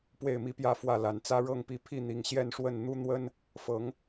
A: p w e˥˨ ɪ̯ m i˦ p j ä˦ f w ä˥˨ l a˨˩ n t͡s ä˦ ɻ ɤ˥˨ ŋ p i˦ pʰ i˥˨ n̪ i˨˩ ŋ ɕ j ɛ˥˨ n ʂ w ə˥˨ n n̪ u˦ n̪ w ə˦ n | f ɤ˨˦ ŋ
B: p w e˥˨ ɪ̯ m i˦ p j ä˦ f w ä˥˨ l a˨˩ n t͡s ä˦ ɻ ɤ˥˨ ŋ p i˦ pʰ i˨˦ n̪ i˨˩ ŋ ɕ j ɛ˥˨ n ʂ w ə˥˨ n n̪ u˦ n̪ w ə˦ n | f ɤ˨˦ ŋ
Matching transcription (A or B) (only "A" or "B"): A